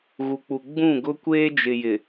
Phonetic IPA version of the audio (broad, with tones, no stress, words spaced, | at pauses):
ɣu˨k͡pu˨ ɡ͡bũ˦˨ɡʊ˦ kʷeː˦d͡ʒɪ˨jɪ˨